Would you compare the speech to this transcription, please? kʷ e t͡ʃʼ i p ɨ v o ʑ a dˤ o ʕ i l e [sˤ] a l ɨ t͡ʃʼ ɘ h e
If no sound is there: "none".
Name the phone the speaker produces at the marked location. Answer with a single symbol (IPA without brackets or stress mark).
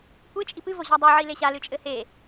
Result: ɕ